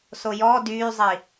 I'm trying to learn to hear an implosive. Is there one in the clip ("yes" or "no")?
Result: no